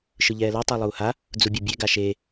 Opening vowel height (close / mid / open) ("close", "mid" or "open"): close